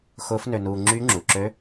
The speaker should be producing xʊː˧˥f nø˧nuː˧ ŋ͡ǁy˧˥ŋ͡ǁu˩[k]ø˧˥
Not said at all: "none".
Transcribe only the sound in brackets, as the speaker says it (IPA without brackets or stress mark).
ǁ